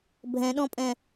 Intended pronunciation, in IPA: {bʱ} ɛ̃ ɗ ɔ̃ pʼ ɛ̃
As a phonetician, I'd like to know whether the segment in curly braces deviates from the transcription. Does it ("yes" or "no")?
no